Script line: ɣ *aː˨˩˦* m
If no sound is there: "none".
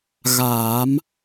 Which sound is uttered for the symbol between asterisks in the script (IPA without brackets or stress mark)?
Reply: aː˨˩˦